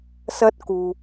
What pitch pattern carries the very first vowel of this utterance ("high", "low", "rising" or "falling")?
high